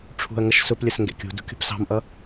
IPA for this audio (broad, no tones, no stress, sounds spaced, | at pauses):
ʈ͡ʂʰ ṳ ɐ̯ ŋ ʌ ʃ s ʊ p lʲ ə s ŋ ɡ ɛ̰ kʲ ṳ d ṳ kʲ ṳ p s ɑ̤ m ʔ ʌ